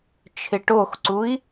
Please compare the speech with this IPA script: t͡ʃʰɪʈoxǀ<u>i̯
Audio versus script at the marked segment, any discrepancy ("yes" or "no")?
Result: no